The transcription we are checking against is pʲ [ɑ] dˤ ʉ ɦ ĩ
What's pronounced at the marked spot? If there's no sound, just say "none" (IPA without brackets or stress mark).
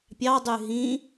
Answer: ɑ